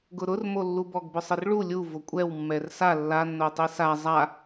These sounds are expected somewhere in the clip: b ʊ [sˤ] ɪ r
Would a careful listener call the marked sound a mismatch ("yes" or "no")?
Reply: no